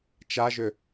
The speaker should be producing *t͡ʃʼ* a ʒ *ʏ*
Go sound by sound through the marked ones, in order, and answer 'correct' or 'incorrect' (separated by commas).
incorrect, correct